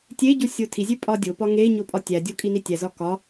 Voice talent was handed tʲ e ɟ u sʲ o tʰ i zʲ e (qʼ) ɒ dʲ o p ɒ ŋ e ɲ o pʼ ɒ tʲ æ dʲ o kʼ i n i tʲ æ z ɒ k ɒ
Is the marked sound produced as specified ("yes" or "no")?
no